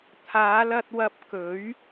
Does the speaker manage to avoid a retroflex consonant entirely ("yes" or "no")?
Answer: yes